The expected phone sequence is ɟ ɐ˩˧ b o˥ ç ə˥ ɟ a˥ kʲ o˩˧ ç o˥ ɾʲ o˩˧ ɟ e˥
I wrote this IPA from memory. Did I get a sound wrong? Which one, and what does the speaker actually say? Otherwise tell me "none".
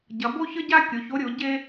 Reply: none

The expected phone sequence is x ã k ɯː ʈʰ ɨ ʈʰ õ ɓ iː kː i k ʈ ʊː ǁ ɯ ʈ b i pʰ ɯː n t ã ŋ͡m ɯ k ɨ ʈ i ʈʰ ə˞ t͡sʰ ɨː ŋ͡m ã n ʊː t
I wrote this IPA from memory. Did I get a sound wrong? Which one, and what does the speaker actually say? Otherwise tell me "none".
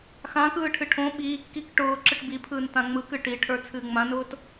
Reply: none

